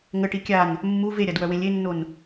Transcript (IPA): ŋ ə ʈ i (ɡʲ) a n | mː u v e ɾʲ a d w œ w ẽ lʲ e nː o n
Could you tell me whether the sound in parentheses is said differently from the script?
yes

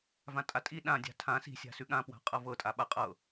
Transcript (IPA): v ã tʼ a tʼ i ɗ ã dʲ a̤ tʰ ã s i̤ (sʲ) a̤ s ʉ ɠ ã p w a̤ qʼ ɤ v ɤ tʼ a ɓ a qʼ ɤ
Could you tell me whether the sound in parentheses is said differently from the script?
no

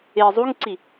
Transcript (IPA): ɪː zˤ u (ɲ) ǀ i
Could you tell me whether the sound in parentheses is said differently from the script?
yes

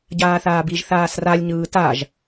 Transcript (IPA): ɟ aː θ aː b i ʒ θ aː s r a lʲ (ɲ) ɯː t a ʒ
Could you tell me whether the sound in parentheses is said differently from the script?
no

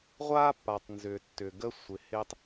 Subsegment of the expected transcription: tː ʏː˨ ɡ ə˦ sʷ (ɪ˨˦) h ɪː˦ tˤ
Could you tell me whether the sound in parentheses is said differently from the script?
no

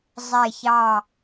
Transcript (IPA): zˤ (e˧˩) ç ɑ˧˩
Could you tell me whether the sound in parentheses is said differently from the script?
no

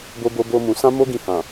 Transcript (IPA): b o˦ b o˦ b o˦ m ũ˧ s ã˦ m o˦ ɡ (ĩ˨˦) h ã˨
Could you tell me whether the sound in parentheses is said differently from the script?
yes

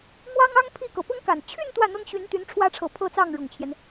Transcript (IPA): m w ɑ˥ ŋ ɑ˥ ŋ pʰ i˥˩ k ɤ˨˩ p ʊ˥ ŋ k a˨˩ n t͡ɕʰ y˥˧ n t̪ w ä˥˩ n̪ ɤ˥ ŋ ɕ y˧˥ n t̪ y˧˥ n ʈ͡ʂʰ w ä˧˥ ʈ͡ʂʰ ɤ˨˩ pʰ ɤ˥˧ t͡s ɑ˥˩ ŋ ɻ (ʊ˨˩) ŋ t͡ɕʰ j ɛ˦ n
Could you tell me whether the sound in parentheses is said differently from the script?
no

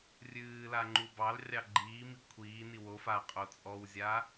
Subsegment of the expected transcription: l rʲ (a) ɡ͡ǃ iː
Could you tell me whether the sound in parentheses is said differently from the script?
yes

